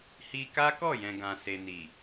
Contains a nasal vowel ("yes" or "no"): yes